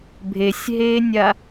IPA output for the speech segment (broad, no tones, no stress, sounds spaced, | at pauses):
bʱ e sʲ ɦ eː nʲ a